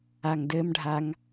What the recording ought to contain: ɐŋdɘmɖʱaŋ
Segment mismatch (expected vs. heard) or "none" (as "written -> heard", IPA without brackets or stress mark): ɐ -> a